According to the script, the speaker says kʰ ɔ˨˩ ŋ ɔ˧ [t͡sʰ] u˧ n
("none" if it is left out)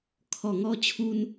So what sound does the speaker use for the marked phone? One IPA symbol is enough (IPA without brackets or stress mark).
t͡ɕʰ